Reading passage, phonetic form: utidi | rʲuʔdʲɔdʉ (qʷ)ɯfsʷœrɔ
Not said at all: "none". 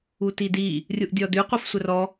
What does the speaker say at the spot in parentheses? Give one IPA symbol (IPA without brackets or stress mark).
qʷ